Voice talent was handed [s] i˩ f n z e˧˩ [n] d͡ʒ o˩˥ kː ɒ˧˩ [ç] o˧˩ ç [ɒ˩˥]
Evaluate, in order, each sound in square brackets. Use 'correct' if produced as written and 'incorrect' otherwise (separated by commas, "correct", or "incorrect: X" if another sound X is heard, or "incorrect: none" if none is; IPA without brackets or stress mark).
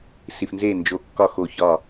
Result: correct, correct, incorrect: x, incorrect: ɒ˧˩